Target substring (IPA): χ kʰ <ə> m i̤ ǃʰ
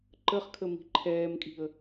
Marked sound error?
no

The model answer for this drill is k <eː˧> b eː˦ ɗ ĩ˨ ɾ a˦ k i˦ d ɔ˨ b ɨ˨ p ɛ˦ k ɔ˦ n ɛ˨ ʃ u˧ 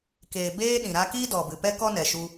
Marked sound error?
yes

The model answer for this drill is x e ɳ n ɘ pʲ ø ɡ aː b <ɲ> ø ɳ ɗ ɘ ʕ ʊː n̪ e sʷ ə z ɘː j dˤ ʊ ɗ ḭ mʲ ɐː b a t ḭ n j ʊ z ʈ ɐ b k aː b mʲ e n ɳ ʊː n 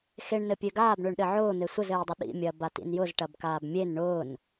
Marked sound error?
yes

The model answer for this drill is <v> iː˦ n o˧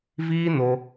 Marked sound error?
no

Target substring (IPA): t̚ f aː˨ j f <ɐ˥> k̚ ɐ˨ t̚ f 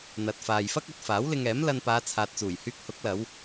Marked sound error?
no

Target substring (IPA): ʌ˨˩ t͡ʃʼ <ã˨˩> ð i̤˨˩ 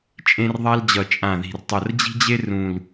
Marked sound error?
no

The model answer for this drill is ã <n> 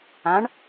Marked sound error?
yes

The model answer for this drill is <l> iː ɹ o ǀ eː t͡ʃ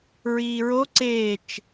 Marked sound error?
yes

